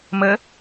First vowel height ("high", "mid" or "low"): mid